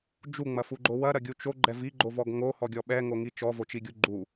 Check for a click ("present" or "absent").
present